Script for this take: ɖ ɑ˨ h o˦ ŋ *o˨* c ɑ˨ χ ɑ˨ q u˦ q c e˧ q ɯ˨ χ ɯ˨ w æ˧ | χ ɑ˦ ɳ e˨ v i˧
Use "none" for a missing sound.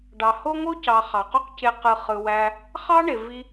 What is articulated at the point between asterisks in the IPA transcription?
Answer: o˦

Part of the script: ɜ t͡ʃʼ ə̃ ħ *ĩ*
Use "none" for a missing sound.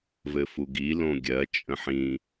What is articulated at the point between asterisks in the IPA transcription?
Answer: ĩ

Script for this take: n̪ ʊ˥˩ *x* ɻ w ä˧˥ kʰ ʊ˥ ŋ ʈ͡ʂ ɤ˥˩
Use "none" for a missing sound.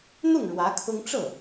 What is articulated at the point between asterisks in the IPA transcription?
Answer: ŋ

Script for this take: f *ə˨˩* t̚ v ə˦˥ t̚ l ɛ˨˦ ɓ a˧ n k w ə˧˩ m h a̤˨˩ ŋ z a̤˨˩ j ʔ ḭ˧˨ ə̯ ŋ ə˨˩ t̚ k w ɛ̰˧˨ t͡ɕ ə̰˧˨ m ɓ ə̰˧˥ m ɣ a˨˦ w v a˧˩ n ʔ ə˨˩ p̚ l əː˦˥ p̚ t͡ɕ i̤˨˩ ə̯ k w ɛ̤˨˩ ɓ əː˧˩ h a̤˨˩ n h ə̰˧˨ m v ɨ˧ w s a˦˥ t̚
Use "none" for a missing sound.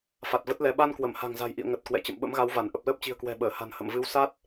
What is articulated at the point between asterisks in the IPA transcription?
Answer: a˨˩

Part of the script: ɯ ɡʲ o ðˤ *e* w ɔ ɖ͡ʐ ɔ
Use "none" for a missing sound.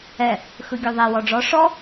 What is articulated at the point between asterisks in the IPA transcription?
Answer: e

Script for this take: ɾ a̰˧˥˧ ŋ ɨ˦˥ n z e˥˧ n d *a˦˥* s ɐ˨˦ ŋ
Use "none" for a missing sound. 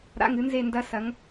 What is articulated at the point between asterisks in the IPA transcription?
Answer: ɐ˦˥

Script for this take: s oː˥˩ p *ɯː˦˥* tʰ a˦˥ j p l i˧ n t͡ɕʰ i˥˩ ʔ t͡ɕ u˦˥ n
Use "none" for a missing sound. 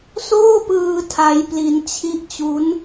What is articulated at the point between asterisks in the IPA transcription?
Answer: ɯː˧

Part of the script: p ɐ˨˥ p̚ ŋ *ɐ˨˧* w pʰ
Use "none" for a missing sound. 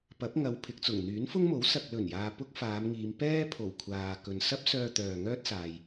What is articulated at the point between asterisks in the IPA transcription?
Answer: ɐ˨˧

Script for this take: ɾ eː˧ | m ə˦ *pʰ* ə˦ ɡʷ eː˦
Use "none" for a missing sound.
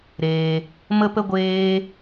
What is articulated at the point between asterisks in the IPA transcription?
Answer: p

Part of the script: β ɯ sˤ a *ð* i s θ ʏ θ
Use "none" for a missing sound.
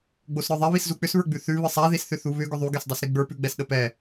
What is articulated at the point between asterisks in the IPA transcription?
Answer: ð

